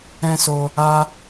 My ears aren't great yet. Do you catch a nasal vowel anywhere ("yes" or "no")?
yes